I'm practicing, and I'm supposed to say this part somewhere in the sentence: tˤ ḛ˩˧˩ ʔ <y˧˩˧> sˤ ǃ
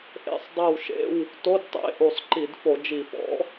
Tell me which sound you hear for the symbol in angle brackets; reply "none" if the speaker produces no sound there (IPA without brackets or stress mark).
u˧˩˧